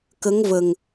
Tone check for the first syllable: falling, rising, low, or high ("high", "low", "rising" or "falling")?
rising